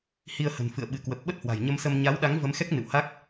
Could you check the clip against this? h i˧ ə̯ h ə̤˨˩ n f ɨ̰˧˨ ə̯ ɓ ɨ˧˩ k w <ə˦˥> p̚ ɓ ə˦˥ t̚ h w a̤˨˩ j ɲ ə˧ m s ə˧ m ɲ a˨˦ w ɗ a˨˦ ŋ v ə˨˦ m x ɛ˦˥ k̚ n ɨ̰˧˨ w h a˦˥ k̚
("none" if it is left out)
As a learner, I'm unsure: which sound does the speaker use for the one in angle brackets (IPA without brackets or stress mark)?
ə˨˩